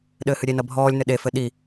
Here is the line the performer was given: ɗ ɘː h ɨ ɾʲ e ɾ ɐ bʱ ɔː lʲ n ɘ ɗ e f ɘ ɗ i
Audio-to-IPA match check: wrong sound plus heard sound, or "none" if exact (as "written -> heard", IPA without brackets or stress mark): ɾ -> n